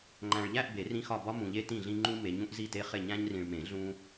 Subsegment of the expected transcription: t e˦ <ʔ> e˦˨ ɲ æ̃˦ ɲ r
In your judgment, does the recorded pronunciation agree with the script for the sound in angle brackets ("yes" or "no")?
no